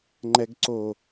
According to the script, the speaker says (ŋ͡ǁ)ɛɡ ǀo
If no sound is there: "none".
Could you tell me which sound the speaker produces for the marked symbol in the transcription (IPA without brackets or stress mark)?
ŋ͡ǃ